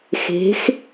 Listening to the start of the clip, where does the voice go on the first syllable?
rising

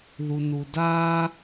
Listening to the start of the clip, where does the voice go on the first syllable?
low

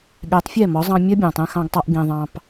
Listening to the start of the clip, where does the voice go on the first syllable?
rising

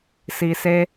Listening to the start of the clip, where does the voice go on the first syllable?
low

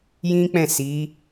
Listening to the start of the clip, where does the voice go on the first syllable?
high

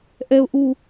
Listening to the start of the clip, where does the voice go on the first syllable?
high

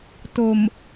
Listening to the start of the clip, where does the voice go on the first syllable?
low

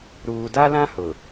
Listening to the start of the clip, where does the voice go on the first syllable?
low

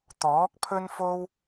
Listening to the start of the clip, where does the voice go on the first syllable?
rising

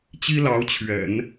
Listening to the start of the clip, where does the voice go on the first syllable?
high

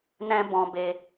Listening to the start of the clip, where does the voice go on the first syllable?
high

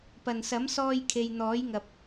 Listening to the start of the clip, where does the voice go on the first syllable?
low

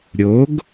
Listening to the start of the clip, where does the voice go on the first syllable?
rising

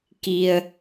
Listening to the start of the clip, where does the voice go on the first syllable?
low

